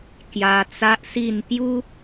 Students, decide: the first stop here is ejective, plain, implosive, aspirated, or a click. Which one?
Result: plain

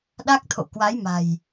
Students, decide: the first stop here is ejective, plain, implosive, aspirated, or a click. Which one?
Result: implosive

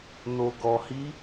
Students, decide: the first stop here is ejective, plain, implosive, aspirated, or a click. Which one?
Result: plain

